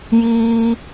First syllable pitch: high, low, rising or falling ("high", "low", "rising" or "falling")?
high